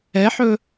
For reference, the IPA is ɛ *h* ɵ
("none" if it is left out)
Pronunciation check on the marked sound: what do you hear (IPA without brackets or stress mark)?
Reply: ħ